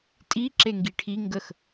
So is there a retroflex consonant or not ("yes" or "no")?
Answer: yes